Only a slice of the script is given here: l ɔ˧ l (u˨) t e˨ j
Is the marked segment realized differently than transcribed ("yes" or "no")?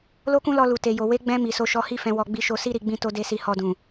no